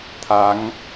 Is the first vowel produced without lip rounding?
yes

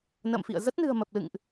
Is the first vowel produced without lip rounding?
yes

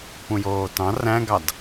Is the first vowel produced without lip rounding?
no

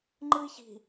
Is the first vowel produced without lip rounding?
yes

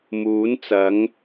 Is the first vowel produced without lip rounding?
no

